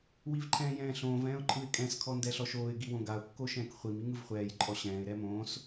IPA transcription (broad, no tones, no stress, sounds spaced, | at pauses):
w i v ǃʰ ɛ̃ː j ɛ̃ː ɬ õː v ɛ̃ː ʊ̯ ǃʼ ɯ ɪ̯ kʼ ɛ̃ s kʰ ɔ n d ɛ ɬ ɔ ʃ oː ɪ̯ ɡ i w õ ɡ a ʊ̯ kː o ʃ ɛ̃ː k χʷ i m i ŋ ɯ v χʷ ɛː j ǃʼ ɔ ɕ ɛ̃ː ɪ̯ ɾ ɛ m õː s